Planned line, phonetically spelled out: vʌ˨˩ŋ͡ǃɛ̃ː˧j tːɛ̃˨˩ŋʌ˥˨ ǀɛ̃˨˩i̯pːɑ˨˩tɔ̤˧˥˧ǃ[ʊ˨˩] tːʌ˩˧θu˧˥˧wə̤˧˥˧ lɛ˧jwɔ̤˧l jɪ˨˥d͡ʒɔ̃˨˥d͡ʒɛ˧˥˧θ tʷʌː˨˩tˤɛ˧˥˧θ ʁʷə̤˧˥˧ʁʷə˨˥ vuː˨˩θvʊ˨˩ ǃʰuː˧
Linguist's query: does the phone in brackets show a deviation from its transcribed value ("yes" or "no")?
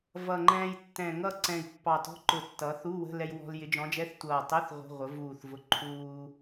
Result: no